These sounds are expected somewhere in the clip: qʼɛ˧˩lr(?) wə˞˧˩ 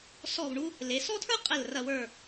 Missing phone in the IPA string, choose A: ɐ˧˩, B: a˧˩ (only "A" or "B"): A